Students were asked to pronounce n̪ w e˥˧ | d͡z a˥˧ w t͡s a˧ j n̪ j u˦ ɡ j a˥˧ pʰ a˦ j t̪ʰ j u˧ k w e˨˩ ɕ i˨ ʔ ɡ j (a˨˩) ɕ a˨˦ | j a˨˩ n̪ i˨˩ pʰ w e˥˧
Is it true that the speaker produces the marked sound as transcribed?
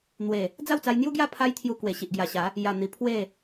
yes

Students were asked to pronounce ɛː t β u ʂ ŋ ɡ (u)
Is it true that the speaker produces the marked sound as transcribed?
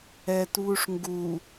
yes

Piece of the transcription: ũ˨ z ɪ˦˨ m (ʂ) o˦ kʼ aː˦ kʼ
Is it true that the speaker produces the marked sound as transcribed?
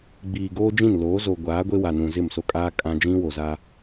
no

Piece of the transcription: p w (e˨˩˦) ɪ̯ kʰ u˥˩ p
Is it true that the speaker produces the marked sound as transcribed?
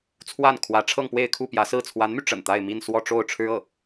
no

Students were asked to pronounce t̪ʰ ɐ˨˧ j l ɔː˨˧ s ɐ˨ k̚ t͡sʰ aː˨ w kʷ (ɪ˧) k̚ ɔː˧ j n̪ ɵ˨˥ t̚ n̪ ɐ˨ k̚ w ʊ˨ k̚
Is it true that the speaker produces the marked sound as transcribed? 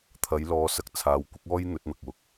no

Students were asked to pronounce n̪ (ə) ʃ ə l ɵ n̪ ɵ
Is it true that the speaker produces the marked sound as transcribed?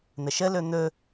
yes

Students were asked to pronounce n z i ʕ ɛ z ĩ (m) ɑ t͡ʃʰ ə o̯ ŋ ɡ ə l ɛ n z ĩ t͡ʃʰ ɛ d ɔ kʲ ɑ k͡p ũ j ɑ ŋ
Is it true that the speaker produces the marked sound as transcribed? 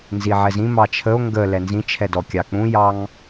yes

